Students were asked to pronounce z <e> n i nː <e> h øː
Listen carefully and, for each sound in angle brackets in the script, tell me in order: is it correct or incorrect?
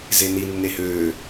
correct, correct

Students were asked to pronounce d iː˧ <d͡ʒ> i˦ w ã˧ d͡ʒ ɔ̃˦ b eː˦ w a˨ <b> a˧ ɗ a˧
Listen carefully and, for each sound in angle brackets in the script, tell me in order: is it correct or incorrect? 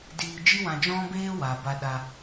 correct, correct

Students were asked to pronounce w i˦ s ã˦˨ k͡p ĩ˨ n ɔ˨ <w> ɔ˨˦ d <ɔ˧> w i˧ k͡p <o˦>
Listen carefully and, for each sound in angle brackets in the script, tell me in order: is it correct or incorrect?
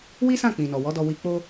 correct, correct, correct

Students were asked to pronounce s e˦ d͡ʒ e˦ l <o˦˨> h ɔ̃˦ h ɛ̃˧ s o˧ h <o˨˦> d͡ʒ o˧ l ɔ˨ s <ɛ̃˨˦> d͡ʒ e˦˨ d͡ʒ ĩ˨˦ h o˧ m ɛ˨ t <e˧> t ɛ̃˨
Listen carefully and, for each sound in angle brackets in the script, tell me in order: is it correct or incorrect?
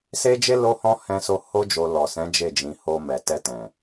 incorrect, incorrect, correct, incorrect

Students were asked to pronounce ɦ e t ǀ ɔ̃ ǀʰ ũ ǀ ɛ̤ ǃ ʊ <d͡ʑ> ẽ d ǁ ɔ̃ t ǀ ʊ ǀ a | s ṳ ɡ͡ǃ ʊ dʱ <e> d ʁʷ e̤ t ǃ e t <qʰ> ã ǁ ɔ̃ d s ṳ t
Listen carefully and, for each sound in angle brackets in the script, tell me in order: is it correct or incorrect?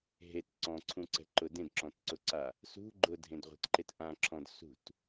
incorrect, incorrect, incorrect

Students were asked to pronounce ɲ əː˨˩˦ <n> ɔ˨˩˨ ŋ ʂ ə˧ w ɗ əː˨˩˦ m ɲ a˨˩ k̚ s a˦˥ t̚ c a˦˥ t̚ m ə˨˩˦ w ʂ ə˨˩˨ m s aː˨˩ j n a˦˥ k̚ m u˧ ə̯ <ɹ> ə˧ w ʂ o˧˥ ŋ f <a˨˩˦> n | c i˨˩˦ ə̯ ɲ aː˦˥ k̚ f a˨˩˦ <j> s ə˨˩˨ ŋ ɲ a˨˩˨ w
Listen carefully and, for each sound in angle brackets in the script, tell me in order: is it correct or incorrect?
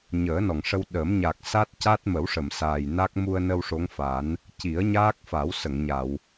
correct, incorrect, correct, incorrect

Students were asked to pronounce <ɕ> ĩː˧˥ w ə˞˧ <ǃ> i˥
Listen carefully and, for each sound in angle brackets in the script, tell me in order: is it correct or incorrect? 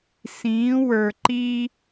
incorrect, correct

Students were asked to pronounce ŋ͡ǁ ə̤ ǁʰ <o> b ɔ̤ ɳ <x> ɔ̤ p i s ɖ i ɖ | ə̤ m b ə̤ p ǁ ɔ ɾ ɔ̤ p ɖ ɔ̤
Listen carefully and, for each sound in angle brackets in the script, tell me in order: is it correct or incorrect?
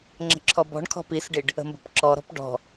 incorrect, incorrect

